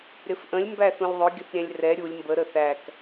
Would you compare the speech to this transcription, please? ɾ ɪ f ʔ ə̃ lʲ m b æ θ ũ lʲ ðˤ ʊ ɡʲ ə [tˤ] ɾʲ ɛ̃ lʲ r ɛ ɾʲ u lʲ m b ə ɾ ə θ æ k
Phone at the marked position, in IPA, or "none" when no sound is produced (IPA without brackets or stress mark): θ